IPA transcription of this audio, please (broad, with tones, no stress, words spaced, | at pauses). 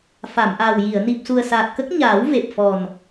fa˨˩˨mʔaː˨˩wji˨˩˨ə̯ ni˨˩p̚su˨˩ə̯saː˨˩t̚kə˦˥k̚ ɲaː˨˩˦w ve˨˩p̚fɔ˨˩n